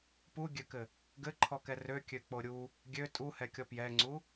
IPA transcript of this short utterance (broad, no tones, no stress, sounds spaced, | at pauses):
p u ɡʲ ø k ɘ | ɡ ɘ ǃʰ ɔ k ɛ r ø kʲ ø k͡p o ɾʲ u | ɡʲ ø tʼ u h ɛ kʲ ɔ p j ɛ ŋ͡ǀ u